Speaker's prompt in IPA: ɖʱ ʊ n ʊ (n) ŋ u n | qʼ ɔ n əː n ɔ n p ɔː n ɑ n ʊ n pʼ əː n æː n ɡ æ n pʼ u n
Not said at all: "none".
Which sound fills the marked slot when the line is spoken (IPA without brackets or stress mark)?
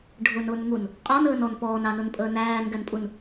n